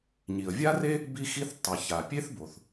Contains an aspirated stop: no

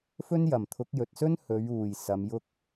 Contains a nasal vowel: no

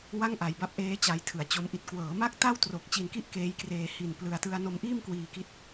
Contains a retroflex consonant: no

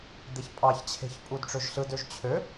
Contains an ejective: yes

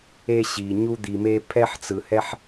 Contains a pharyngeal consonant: yes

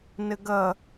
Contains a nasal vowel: no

